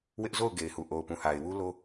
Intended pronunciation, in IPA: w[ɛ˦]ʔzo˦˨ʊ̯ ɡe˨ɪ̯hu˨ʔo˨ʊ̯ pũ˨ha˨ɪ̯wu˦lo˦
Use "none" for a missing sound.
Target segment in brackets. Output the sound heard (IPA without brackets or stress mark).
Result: ɪ˦